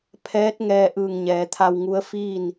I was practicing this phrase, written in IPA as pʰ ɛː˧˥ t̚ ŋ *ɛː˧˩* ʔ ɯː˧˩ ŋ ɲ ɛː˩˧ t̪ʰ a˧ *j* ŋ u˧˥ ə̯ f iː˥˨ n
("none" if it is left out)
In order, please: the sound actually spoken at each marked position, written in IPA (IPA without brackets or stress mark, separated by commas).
ɛː˧, w